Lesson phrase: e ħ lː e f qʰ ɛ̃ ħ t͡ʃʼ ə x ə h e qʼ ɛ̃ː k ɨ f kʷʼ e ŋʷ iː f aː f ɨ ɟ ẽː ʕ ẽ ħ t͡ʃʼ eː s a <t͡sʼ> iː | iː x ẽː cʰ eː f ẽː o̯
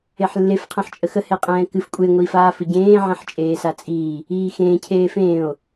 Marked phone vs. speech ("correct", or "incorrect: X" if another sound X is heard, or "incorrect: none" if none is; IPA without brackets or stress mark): correct